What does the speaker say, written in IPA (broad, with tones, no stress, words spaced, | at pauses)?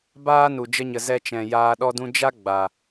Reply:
baː˦ nu˨d͡ʒə˧ɲə˨ zɛ˧t͡ʃɛ̃˨ jaː˧ɗɔ˦dũ˦ d͡ʒa˦ ɡ͡ba˨